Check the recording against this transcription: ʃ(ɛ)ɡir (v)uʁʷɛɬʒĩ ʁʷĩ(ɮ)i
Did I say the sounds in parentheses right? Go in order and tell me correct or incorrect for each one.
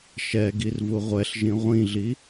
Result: correct, correct, correct

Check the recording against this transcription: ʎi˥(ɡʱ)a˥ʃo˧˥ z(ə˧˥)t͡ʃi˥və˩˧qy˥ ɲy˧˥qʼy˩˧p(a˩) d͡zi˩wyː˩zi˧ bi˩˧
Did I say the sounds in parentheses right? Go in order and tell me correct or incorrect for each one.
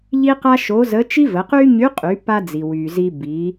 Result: incorrect, correct, incorrect

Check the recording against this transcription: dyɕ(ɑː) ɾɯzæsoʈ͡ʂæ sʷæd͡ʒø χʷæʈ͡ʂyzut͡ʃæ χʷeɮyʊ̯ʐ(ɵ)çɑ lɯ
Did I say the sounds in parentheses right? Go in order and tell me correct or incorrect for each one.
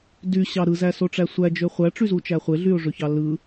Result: incorrect, incorrect

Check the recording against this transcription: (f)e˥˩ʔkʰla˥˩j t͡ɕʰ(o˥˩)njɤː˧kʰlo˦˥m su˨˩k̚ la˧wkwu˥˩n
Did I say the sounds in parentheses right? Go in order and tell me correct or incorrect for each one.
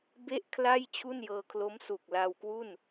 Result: incorrect, incorrect

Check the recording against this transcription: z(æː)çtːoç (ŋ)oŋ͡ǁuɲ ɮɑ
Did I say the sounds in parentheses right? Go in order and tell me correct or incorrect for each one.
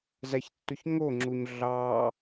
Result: incorrect, correct

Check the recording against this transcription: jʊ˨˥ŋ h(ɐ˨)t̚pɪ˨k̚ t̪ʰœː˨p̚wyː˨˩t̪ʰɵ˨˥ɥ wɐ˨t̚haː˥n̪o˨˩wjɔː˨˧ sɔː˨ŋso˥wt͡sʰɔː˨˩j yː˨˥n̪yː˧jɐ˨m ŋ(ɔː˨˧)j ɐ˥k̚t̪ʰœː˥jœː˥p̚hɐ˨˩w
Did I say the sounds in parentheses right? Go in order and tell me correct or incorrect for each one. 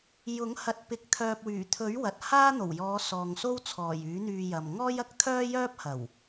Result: correct, incorrect

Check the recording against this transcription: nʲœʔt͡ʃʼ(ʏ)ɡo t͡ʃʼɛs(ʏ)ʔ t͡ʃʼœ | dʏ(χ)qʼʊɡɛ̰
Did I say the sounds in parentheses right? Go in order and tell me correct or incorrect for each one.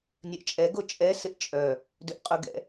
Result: incorrect, incorrect, incorrect

